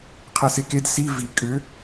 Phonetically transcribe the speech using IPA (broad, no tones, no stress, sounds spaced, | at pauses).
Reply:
qʰ ɛ s e k e d s i v i kʼ ʏ